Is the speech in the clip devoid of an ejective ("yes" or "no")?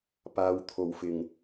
yes